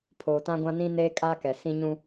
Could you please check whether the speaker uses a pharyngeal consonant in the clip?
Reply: no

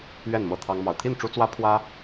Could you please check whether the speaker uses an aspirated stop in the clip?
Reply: yes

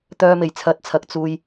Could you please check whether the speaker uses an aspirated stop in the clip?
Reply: yes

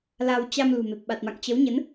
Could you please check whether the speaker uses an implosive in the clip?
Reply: yes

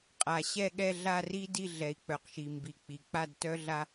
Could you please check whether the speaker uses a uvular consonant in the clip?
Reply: yes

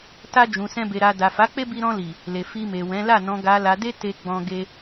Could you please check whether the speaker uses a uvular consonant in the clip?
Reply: no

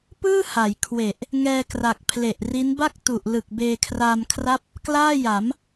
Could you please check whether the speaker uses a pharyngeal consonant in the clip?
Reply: no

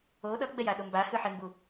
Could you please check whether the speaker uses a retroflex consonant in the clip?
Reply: no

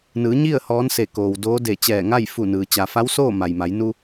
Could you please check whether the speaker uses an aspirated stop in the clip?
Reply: no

